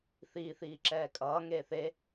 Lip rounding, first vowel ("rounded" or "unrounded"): unrounded